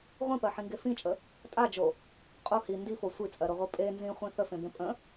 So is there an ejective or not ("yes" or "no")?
yes